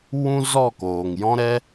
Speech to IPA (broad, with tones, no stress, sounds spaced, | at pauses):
w ũ˦ z ɔ˦˨ k oː˨ ŋ j ɔ̃˦ ɾ ɛ˦